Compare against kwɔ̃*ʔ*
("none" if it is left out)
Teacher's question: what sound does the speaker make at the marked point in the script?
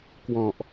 ʔ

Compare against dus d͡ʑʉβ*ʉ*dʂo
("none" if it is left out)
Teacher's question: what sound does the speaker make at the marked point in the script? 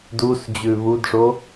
u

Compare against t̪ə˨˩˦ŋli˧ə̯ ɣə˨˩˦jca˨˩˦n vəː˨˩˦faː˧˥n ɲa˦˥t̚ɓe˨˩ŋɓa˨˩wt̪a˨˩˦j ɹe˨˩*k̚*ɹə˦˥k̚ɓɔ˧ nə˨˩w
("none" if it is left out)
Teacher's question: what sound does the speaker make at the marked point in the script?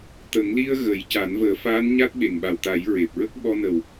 p̚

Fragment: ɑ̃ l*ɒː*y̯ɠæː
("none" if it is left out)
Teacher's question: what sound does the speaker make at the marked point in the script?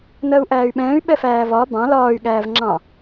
ɒː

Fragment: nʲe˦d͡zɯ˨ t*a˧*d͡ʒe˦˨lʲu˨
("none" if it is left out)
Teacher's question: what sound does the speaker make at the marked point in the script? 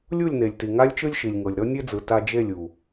a˧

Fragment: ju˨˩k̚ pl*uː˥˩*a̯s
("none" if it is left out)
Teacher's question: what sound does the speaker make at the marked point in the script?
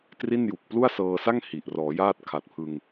u˥˩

